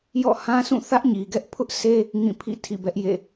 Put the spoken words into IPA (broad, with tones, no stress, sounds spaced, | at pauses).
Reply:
j ɔ̰˦˨ h ã˦ s ũ˦˨ θ ä˦ ʔ ɲ i˨ ɡ ɛ˦ ʔ pʰ ʊ˦ ʔ s e˦ | ŋ ĩ˦˨ pʰ ḭ˦˨ tʰ ḭ˦˨ b ɛ˦ ʔ j ḛ˦˨